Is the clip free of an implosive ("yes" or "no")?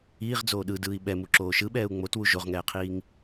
no